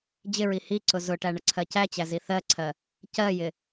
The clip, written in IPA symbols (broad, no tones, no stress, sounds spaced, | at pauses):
d͡ʑ ɪ ɹ i h i ǀ ʊ z ʊ ʈ æ ɳ ə ǀʰ ɜ c æ t͡ɕ æ z i θ ɜ ǀʰ ɜ | c ɜ j ɪ